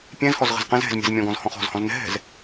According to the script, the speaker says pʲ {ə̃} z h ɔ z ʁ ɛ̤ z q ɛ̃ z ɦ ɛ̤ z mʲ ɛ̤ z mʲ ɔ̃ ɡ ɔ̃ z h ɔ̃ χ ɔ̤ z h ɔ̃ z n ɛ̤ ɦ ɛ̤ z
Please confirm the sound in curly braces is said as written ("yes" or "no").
no